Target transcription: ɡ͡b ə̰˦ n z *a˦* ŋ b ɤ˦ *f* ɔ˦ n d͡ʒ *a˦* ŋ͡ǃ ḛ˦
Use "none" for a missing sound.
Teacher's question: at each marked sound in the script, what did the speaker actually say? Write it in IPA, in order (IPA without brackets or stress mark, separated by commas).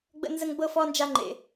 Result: ə˦, f, a˦